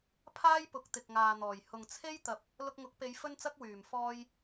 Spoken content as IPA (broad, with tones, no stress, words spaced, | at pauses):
pʰaː˥jpʊ˨˥k̚ t̪ɪ˨k̚ŋaː˨n̪ɔː˨˩j hʊ˨ŋt͡sʰe˥jt̪ɐ˨p̚ | lʊ˧k̚ŋʊ˨˥k̚pe˨˧j fɵ˥nt͡sɐ˥k̚ wyː˨˩mfɔː˧j